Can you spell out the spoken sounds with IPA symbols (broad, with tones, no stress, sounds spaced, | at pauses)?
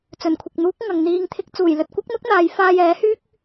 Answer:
t͡s ɵ˨˩ n kʷʰ ɪ˨ k̚ n̪ uː˨˥ k̚ ŋ ɐ˨ ŋ n̪ iː˧ ŋ t̪ʰ ɪ˧ k̚ t͡s uː˨˩ j l ɵ˨ t̚ kʷ ɐ˥ k̚ n̪ ʊ˥ k̚ n̪ aː˨˧ j f aː˧ j ɛː˨˥ h yː˥ k̚